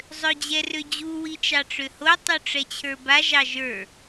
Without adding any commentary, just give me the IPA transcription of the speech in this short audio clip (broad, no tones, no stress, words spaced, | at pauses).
zˤød͡ʑɛrød͡ʑu wit͡ʃɑʈ͡ʂøho tˤuʈ͡ʂɛt͡ɕʰə˞ba ʒɑʒə˞